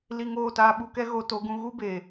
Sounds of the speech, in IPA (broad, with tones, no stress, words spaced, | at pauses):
li˧ŋoː˦˨taː˧ɓu˧ kɛ˦ɣo˧to˨˦ɡũ˧ ɣu˦beː˨